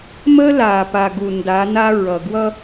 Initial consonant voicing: voiced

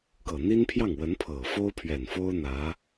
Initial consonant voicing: voiceless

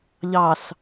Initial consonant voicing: voiced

